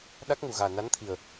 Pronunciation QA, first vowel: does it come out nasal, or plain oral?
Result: oral